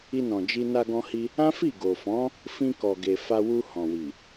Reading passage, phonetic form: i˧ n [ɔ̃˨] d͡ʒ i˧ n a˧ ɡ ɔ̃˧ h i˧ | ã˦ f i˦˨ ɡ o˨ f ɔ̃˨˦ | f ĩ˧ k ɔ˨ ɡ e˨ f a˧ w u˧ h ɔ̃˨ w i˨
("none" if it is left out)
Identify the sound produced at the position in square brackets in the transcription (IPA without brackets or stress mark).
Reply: ɔ̃˨